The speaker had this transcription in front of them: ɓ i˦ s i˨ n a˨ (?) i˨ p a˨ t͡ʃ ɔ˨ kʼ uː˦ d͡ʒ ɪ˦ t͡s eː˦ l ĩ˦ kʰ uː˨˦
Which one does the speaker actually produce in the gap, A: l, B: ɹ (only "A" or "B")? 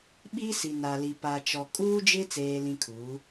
A